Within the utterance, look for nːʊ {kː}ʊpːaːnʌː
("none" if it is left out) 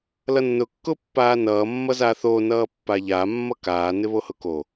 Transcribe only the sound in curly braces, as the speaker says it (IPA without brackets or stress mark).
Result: kː